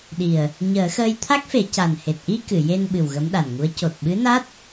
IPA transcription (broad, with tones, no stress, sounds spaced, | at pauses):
ɗ i˨˩ ə̯ | ɲ əː˨˩˦ x əː˧ j t̪ʰ a˦˥ k̚ f e˨˩˦ c a˨˩ n h e˨˩ t̚ ʔ i˧ k ɨ˨˩˨ j e˧ n ɓ ɨ˨˩ w ɣ ə˧˥ m ɗ a˨˩ n ŋ u˧˥ ə̯ c o˨˩ t̚ ɓ ɨ˧˥ n a˦˥ t̚